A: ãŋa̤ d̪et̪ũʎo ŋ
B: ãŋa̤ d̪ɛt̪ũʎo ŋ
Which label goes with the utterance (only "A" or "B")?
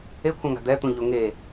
B